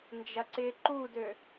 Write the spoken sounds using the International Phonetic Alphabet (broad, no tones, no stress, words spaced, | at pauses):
nd͡ʒɐǀɪːǃudø